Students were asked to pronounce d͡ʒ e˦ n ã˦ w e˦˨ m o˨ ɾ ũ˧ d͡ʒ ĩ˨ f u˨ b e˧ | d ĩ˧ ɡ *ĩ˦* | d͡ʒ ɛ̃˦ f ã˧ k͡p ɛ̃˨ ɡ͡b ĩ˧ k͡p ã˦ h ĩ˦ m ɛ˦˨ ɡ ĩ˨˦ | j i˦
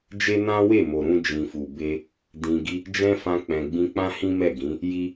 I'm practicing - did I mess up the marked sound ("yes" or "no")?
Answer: yes